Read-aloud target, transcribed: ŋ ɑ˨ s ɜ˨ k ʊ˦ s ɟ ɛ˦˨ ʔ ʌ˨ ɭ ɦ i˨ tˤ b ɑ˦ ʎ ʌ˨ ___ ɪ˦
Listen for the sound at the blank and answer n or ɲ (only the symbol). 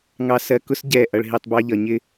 ɲ